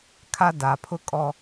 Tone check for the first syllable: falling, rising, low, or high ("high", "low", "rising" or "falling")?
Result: high